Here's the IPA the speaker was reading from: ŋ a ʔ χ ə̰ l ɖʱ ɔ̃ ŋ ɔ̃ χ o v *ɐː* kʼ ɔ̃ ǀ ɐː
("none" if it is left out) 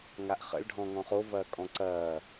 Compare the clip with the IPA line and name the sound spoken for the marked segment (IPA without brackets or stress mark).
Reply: ɐː